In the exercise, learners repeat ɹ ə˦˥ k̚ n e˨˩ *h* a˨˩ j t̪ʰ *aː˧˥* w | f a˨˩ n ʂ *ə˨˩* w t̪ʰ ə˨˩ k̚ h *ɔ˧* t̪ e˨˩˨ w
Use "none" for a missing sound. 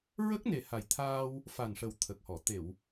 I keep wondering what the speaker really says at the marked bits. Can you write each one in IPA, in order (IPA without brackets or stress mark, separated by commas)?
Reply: h, aː˧, ə˨˩, ɔ˨˩˨